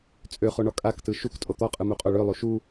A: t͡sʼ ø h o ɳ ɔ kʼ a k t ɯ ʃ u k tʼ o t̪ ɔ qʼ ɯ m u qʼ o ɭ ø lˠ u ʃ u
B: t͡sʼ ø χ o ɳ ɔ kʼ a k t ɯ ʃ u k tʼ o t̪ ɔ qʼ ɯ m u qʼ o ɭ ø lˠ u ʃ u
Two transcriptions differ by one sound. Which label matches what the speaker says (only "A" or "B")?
B